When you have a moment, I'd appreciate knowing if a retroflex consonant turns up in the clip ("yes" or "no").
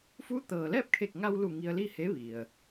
no